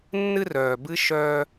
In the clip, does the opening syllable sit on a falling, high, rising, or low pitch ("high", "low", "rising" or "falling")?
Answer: high